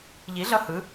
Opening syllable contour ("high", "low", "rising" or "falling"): rising